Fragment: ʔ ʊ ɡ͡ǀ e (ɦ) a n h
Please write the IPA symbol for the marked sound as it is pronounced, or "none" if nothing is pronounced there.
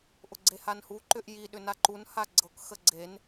h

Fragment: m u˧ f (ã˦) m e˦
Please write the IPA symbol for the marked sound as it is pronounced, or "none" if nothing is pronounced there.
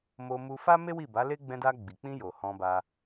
a˦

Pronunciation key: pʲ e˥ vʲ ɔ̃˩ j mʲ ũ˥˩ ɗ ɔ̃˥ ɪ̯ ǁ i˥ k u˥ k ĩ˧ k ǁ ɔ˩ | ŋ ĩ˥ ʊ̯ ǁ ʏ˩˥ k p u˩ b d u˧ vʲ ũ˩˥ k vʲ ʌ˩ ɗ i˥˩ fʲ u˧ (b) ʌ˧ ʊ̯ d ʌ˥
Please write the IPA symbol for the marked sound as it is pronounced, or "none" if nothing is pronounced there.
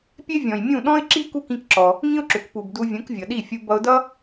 b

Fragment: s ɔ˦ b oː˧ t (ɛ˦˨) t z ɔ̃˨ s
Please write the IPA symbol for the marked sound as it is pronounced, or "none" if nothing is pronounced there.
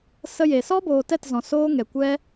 ɛ˦˨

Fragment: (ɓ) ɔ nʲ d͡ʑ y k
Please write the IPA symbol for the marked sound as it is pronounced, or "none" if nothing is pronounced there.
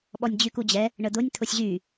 ɓ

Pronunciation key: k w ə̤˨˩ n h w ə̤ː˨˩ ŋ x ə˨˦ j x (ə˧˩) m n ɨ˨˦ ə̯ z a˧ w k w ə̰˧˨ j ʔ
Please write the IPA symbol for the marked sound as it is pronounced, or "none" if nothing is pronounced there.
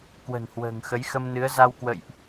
ə˧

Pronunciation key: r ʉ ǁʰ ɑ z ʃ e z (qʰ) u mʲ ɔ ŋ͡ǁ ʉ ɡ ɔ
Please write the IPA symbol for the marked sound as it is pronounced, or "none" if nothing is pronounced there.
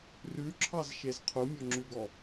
qʰ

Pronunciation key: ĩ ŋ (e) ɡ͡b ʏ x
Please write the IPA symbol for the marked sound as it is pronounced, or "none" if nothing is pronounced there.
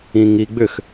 i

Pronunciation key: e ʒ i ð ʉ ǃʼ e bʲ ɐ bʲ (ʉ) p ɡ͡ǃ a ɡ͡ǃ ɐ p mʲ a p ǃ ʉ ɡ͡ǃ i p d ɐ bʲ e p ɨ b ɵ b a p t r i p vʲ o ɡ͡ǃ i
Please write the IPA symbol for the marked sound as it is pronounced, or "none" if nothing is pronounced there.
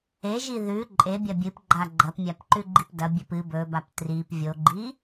ɨ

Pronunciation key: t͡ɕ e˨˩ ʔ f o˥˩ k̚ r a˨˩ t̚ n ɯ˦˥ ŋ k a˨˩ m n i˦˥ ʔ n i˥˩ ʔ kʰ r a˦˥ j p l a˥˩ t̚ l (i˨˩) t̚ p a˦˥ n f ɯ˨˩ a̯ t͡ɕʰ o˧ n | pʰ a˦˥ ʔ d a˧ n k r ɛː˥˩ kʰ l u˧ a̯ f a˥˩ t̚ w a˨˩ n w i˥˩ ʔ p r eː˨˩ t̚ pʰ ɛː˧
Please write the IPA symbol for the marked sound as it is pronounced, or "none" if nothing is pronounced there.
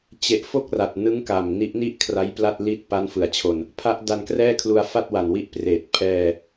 i˥˩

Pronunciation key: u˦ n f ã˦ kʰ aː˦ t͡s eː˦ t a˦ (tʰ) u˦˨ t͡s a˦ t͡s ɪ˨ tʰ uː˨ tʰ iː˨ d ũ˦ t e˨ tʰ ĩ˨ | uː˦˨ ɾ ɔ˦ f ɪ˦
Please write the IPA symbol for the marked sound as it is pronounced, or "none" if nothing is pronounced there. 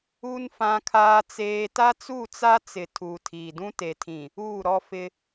t͡s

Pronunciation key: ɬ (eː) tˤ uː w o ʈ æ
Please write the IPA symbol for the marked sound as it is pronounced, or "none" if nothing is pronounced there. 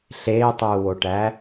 eː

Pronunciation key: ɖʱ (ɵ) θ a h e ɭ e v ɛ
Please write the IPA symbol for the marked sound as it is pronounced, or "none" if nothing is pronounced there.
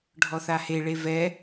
ɔ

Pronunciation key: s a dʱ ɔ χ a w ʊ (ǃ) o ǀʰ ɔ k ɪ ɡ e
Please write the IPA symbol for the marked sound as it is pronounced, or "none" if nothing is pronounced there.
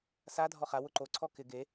ǃ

